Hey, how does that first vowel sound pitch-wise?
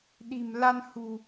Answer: low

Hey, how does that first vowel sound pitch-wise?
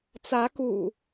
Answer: rising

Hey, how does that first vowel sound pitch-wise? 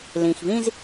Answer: low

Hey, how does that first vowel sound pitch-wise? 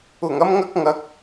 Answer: low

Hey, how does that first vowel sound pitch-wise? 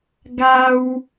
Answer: high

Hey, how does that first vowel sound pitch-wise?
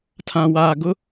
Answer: low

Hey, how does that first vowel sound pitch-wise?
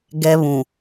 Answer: high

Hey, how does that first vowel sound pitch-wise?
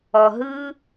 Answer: low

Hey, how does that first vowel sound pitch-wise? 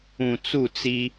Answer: low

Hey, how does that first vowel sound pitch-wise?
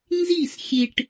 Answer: falling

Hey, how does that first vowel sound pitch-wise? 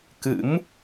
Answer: rising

